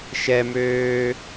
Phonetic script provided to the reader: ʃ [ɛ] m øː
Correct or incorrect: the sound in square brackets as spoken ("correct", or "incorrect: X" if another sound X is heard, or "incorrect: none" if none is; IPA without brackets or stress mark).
correct